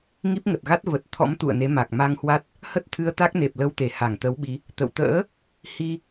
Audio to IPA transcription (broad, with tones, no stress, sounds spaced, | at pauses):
ŋ i˦˥ p̚ ŋ ə˨˩ t̚ ɣ a˦˥ t̚ v ə˨˩ t̚ t̪ʰ ɔ̰˧˥ m t̪ ṵ˧˨ ə̯ n e˨˦ m a˨˩ k̚ m a˧ ŋ h w a˦˥ t̚ | h ə˦˥ t̚ t̪ʰ ɨ˧ ə̯ t̪ a˦˥ k̚ n e˨˩ p̚ l ə˧ w t̪ e˧˩ h a˧˩ ŋ t̪ ə˨˦ w ɓ i˨˦ | t̪ ə̰˧˨ w t̪ ə̰ː˧˥ | h i˧